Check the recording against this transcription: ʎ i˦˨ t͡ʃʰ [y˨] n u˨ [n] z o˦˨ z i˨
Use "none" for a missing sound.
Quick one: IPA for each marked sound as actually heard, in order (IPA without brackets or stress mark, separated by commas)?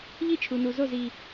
u˨, none